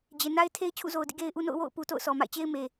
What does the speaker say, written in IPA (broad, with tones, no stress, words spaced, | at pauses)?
d͡ʑe˨na˦ɪ̯tʰe˦ɪ̯ t͡ɕʰṵ˦˨zo˨ʊ̯dḭ˦˨ ɡe˦ɪ̯ʔu˦ no̰˦˨ʊ̯ wo̰˦˨ʊ̯pu˨ to̰˦˨ʊ̯sɔ˨ma̰˦˨ɪ̯t͡ɕe˦ɪ̯ me˨